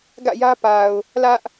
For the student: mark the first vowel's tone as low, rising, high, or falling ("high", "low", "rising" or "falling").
falling